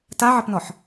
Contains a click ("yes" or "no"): no